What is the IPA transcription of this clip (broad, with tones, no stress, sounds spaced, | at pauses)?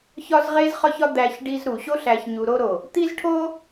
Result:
ç ɒ˦ z ʁ e˦ z χ ɒ˦ ç ɒ˦ d̪ æ˧ ç ɖ i˧ z ɾ u˨ ɕ o˦ ɬ æ˧ ç ɲ u˧ ɾ o˦ ɾ o˨ | t̪ i˦ z ʈʰ o˦